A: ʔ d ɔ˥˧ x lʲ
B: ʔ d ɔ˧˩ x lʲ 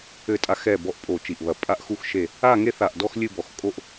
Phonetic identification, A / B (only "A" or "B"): A